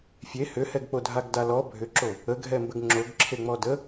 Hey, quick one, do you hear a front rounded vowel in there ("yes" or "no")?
yes